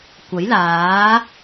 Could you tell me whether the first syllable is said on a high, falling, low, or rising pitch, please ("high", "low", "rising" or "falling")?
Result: rising